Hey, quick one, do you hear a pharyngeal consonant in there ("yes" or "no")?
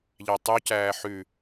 yes